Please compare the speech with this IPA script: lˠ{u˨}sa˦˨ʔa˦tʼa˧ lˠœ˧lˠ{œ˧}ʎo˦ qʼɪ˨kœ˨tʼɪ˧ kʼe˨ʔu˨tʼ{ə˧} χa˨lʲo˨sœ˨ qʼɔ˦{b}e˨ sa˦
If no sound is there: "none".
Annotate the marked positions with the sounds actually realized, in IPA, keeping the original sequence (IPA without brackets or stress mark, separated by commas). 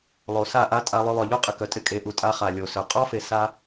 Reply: o˨, œ˨, a˧, f